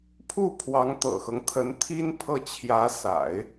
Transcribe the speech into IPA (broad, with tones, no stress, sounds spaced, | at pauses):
pʰ u˥˩ pʰ w ɑ˧˥ ŋ t̪ ɤ̰˨˩ x ɤ˦ ŋ t̪ʰ ə˧˥ n t̪ʰ i˥ n pʰ ɤ˥˩ t͡ɕʰ j ä˧˥ s a̰˨˩˦ ɪ̯